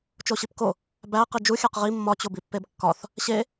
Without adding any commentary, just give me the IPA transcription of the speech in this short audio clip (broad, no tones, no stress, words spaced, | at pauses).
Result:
t͡ʃoɕipko | bæ qid͡ʒu xʲæqʁi mːɒ t͡ɕobipːebkːɒθ | ɕe